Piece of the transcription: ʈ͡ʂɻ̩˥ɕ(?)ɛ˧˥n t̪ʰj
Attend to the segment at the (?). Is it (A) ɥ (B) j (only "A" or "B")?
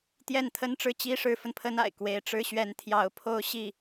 A